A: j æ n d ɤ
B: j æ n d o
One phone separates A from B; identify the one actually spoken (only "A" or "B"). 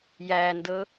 A